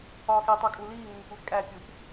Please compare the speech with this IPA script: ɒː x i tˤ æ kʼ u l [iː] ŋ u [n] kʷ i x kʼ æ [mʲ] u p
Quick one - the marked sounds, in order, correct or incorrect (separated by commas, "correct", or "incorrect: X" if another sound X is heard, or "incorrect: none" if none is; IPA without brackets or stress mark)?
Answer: correct, incorrect: ŋ, incorrect: pʲ